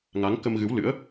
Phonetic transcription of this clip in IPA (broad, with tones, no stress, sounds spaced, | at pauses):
ŋ a˨˦ ŋ k ə˧ m ɣ ɨ˨˦ w l ɨ̰˧˥ ə̯